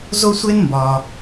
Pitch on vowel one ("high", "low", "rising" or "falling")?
high